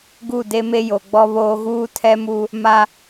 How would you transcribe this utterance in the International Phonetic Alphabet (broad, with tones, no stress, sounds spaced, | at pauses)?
ɡ u˦˨ d e˦ m e˦ j o˨ ɡ͡b ɔ˦ β oː˦ ɣ uː˦ tʰ ɛ˦ m u˦ | m a˦